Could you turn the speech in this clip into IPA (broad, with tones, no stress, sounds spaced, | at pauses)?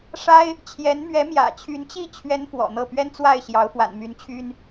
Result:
ʂ a˥ ɪ̯ | t͡ɕʰ j ɛ˧˥ n m ɥ ɛ˧˥ m j ä̰˨˩ t͡ɕʰ y˧˥ n t͡ɕ i˥˩ t͡ɕʰ ɥ ɛ˥ n f w ɔ̰˨˩ n̪ ɤ˥˩ p ɥ ɛ˥ n t͡s w a˥˩ ɪ̯ ɕ j ɑ˧˥ ʊ̯ f w a̰˨˩ n m y˧˥ n t͡ɕʰ y˥ n